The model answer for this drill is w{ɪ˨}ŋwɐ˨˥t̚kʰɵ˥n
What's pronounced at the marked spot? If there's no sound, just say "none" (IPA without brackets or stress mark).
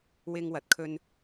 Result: ɪ˥